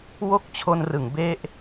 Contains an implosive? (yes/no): no